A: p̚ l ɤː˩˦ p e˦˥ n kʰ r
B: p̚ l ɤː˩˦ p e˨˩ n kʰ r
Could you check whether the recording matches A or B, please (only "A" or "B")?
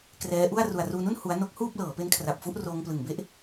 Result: A